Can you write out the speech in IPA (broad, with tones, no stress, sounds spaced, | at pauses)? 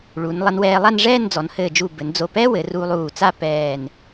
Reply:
ɭ u˩˧ n lˠ ɐ˧ n w ɛː˧ lˠ a˥˧ n ʐ ɛː˥˧ n d͡z ɔ˩˧ n h ɘː˧˩ d͡ʒ u˧˩ b ɘ˩˧ n d͡z o˧˩ p ɛ˥ w ɘ˩˧ r u˧ lˠ uː˧˩ t͡s a˥˧ p ɛː˧˩ n